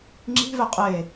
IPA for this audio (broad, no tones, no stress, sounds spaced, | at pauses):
ŋ͡ǁ i̤ v e qʼ e